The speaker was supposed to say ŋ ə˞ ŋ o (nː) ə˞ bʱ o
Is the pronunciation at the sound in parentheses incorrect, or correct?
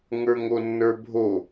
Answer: correct